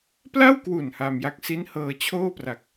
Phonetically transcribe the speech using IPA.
pla˥˩wkwu˨˩n ha˧mja˦˥k̚ si˦˥nhɤː˧t͡ɕʰoː˥˩pra˨˩k̚

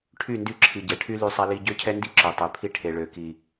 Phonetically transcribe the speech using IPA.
ʈʰy˦˨ndy˦ ǁʰi˨ɟɛ˨ʈʰy˦ ly˦sˤɛ˦li˦ ɟø˦cʰɛ˦ndi˦ ǁø˨tˤe˨pʰi˦ ʈʰe˨ɭø˨ki˨

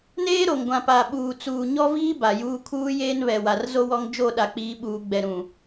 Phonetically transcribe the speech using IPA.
neː˦ɾo˨ŋɡʷã˨paː˨ ɓuː˨t͡suː˨ɲɔ˦viː˦ ba˨juː˦ kʰuː˦jeː˦nβɛ˨ wa˨rzo˦ wɔ˦ŋ d͡ʒo˦˨ ɗa˨k͡piː˨˦ɓuː˨ ɡ͡bɛ˨ɾũ˨

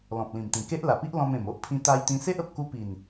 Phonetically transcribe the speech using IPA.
lɔ̃˨p̚lĩ˨˩mt̪ĩ˨˩ke˦ʔ la˨˩pi˦ʔ lɔ̃˧mẽ˨˩m o˦ʔpʰĩ˧ t̪a˧jt̪ĩ˧se˦ʔ ə˨p̚ku˦ pi˨˩n

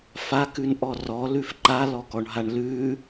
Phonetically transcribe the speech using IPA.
fakʉnʔɔ rɔlʉf ǃalɔkɔɳɦaɳ lʉ

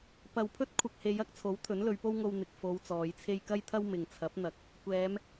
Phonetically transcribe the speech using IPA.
pɐ˨wpʰɵ˥t̚ kʷʰɐ˨k̚he˨˧j ɐ˧k̚t͡sʰo˨˥w t̪ʰɵ˨˥nlɵ˨˧ɥpo˥wŋo˧w n̪ɪ˨k̚ fo˨˧w t͡sɔː˨˧jt͡sʰe˥j kɐ˥jt̪ʰɐ˥w mɪ˨ŋt͡sʰɐ˨˥p̚n̪ɐ˨˥k̚ | kʷɛː˨˧m

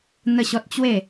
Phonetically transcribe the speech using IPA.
n̪ə˥˧ɕɔ˦t̚ t͡ɕwe˥˧

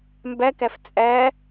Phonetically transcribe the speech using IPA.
mbækæf t͡sʼæ

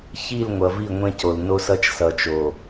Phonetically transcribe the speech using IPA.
çi˦˨lŋʷʌ˨vi˦˨ ŋʷẽ˦co˨l no˦sʌ˦t͡ʃ sʌ˨t͡ʃo˨

